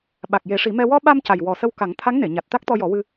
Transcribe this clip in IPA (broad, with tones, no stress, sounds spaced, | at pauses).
ɓ a˨˩ k̚ j e˨˩˦ ʂ i˨˩˦ m ɛ˧ w ɔ˧ ɓ a˧ m c a˨˩ j w ɔ˨˩ s ə˧ w k a˨˩˦ ŋ t̪ʰ a˧˥ ŋ n e˨˩˨ ɲ a˨˩ t̚ t̪ a˦˥ k̚ t̪ ɔ˧ j ɔ˨˩˦ w ɨ˧